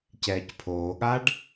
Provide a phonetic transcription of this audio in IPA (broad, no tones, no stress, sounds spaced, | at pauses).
c ɛː c pʰ oː ɠ a ɖ